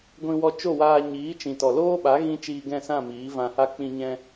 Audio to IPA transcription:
ɡʷ ĩ˧ w ɔ˧ t͡ʃ o˦˨ w aː˧ ɲ iː˨˦ t͡ʃ ĩ˨ t ɔ˨ l oː˦ ɓ a˨˦ ɣ ĩ˦ t͡ʃ iː˧ ɡ ɛ̃˦˨ s ã˦˨ m iː˨˦ v ã˧ h a˦ k͡p ĩ˧ ɲ ɛ̃˧

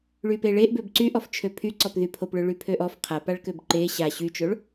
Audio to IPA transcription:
ɭ y p e ɭ e ʔ b ø b ǀ y ʔ ɔ f t͡ʃʰ ø pʰ y ǀ ɔ p ð y pʰ o p ɭ ø ɭ y pʰ ø ʔ ɔ f qʰ a p a ɭ k ø b ǃ e ɕ a ɕ y t͡ʃ o ɭ

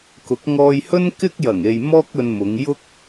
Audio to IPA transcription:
k ʊ˨˥ k̚ ŋ ɔː˧ j h ɵ˥ n k ɪ˥ k̚ j ɐ˨˩ ŋ e˨ j m ɔː˥ k̚ ɵ˧ n m ʊ˨˧ ŋ j ʊ˥ k̚

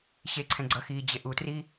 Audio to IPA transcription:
ɕ e ǀʰ ɛ̃ ɡ͡ǀ ʌ x iː d͡ʑ e ʔ u t r i

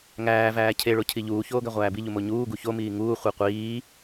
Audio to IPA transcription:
ŋ æː v æː cʰ e ɭ o cʰ i ʎ uː ç oː ɡ æ ʁʷ æː b i ʎ u m o ɲ uː ɡ u ç o m iː ŋ uː χʷ i qʷ iː

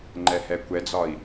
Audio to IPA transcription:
ŋ͡ǃ ɛ h ɛ kʷ ɛ d͡z ɒ i̯

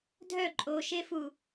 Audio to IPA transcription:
dʱ œ ǃʼ o ʃ e f u

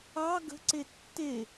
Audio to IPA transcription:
ɑ ɡ ə̤ ǀ e tː e

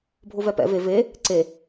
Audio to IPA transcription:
bʱ o v ɛ p ɛ̰ v e v e | ǀ e

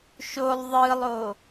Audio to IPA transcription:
ʃ o lˠ ðˤ ɯ lˠ o

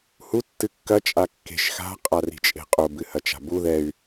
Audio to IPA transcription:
h u tː ɨ kː ɐ t͡ʃʼ a kː e̤ ʃ x a̤ qʼ a r i̤ t͡ʃʼ e̤ qʼ o b ɨ h ɐ t͡ʃ a̤ b u ð ɛ y̯

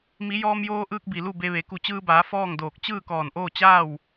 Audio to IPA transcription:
m i˩˧ j ɔː˧ m j oː˧ ʔ ɯː˧ k̚ b i˩ l u˥˨ b e˧ ʋ e˩˧ k u˧˩ t͡ɕ ɯː˧ b aː˩˧ f ɔː˥˨ ŋ d oː˧˩ k̚ t͡ɕ ɯː˥˨ k ɔː˧˩ n ʔ oː˥˨ t͡ɕ aː˥˨ w

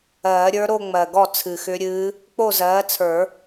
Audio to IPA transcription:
ɜː˨˩˦ ɾʲ ə˞˧˥ ɾ o˥˧ ŋ͡m ɜ˨˩ ɡ ɔ˥˩ t͡sʰ ɨ˨˩ x ʏ˧˥ ɾʲ ɨː˧˥ | k͡p o˥˩ z ɜː˩˥ t͡sʰ ə˞˨˩˦

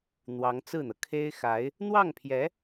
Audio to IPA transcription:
n̪ w ɑ˧˥ ŋ t͡s ɹ̩˥˩ n̪ ɤ˩ kʰ e˥ ɪ̯ x a˧˥ ɪ̯ | n̪ w ɑ˥˩ ŋ pʰ j ɛ˧˥

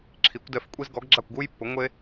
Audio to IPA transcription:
ǁʰ i˩˥ kʷ d ɛ˧˥ f kʷʼ i˥ z ɡ ɔ˩˥ ɡ ɡ͡ǁ a˥˩ kʷ ɡ u˥ j pː ʊ˩˥ ŋʷ e˥

